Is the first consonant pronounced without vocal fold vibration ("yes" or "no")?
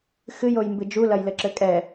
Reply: yes